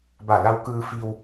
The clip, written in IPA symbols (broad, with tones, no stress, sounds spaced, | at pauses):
b a˧˩ l a˧ w k ɯː˧ f i˧ w